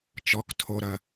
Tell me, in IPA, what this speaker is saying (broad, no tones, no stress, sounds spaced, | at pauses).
t͡ʃ ɔ k tʰ o ɾ ɐ